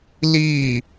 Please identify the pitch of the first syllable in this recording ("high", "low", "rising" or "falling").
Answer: falling